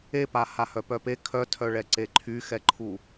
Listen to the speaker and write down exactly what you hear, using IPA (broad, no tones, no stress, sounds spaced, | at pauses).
e p a h a h œ p œ p e kʰ œ tʰ œ ɭ ɛ ǀ e ǃʰ y x ɛ ǃʰ u